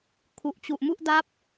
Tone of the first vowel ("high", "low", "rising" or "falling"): low